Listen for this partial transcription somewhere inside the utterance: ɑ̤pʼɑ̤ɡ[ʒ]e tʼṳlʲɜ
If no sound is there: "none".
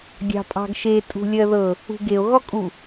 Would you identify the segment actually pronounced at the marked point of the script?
ʃ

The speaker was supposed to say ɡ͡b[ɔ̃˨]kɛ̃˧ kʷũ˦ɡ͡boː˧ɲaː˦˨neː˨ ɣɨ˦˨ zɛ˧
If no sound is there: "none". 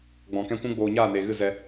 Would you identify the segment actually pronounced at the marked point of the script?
ɔ̃˨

